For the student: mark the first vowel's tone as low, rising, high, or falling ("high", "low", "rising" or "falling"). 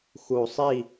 low